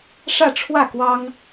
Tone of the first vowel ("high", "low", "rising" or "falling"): falling